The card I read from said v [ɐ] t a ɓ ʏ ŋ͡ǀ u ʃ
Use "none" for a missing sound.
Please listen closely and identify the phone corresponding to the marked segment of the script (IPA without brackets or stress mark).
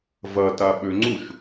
ɐ